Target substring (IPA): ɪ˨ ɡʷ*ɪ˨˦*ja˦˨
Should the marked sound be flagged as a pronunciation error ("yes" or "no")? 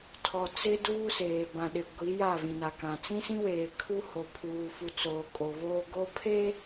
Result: yes